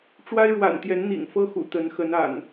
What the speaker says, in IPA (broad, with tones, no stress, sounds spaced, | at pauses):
ʈ͡ʂ w a˦ ɪ̯ ɻ w a̰˨˩ n t̪ j ɛ˨˦ n n̪ ḭ˨˩ ŋ f ɤ˦ x ṵ˨˩ t̪ ə˨˦ n x ə˨˦ n a̰˨˩ n